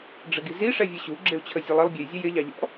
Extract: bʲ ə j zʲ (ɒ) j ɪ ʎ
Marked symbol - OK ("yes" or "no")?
no